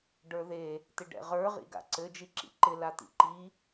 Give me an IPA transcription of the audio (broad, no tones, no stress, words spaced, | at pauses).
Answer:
ɖə˞ðe | t̪ɪɖɛ̰ʁə˞ ʁḭɡa̰ǀɘ d͡ʒiǁḭǃɪ lat̪ḭǃi